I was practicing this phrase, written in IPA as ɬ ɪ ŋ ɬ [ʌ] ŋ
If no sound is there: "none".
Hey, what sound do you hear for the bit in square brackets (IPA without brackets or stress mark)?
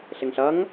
ʌ